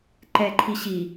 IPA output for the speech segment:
ǃ ɛ ǃʰ i ɕ i

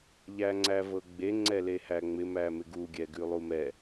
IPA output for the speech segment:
ʎ æ ŋ͡ǀ æ v ɤ ɡ͡b e ŋ͡ǀ ɛ l e h æ ŋ͡m ɪ m æ m ɪ ɡ u ɡʲ ɛ ɡ ʉ lˠ u m ɛ

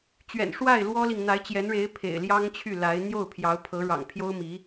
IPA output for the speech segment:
t͡ɕ ɥ ɛ̰˨˩ n ʂ w a˥˩ ɪ̯ l w ɔ˥ l i˨ ŋ n̪ a˧˥ ɪ̯ t͡ɕ j ɛ˧˥ n ɻ e˧˥ ɪ̯ pʰ ḛ˨˩ ɪ̯ l j ɑ˥ ŋ t͡ɕʰ y˥˩ l a˧˥ ɪ̯ n̪ j o˥˩ ʊ̯ pʰ j ɑ˧˥ ʊ̯ pʰ ɤ˧˥ ɻ ɑ̰˨˩ ŋ pʰ j o˥ ʊ̯ m i˧˥

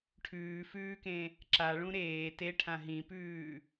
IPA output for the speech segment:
ʈʰ ʉː f ʉː k ẽ | ǁ a ɭ ũ ɾ eː t e ʈʰ ã ɦ ĩ p ʉː

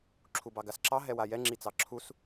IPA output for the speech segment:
ǁʰ u b ɑ ɡ a s ǁ ɑ ɦ ɛ w a j ɛ ŋ͡ǁ i t͡s ɑ ǁʰ u s

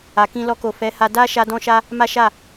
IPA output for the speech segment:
a˨ k ĩ˧ l ɔ˧ k o˨ f ɛ˨˦ h a˧ d a˦ ʃ a˦ d ɔ̃˦ ʃ a˦ | m a˦ ʃ a˦˨

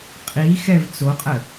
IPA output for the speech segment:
qʼ i x ɛ v t͡s o qʼ ə

